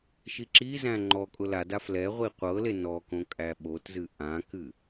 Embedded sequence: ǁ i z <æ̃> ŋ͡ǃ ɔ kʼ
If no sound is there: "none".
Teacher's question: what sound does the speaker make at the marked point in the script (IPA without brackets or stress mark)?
æ̃